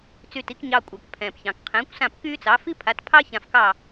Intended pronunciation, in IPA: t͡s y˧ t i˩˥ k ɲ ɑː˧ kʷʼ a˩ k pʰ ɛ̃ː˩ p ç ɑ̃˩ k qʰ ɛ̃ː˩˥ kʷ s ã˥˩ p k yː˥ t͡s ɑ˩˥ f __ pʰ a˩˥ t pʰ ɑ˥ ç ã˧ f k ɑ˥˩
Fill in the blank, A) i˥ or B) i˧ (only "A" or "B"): A